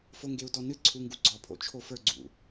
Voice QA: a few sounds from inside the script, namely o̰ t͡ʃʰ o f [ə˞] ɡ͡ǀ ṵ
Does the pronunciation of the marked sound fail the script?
no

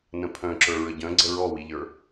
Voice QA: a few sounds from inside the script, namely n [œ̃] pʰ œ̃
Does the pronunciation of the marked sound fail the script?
yes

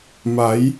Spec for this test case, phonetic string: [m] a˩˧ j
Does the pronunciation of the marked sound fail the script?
no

